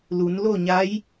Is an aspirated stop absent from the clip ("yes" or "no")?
yes